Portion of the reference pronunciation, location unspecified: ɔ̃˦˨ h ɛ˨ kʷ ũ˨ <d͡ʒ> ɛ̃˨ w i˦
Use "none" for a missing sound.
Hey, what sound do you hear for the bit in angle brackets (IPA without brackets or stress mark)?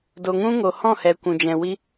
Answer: d͡ʒ